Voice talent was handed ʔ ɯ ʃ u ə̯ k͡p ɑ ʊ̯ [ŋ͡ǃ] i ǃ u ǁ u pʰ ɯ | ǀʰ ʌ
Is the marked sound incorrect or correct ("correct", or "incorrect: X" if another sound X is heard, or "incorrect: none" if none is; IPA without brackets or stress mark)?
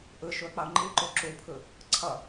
correct